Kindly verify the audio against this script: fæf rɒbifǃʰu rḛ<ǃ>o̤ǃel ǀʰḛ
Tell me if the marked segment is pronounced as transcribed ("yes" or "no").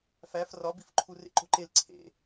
yes